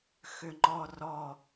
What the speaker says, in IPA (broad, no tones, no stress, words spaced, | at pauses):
xʏŋ͡ǃɔrɔ